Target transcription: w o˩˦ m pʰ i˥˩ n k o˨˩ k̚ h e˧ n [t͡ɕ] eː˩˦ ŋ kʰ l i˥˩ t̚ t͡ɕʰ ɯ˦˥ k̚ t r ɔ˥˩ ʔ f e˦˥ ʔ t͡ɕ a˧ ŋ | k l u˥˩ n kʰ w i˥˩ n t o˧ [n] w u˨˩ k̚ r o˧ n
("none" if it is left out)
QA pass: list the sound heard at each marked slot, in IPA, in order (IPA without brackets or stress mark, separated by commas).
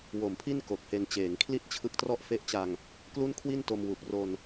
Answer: t͡ɕ, m